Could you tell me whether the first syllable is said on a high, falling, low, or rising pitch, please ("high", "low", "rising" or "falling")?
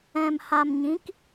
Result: low